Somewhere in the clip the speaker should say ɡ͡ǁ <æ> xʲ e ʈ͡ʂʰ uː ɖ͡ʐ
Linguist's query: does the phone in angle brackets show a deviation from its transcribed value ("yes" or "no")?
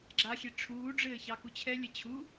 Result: yes